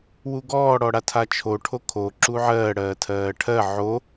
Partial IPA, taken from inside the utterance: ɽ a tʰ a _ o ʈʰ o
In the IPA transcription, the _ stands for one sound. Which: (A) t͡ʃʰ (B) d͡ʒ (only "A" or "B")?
A